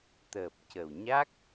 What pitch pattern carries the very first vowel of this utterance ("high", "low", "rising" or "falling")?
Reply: low